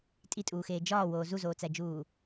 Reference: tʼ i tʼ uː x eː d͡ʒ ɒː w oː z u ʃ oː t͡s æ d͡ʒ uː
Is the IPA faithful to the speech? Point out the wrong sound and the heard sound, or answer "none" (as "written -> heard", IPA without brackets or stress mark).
ʃ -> z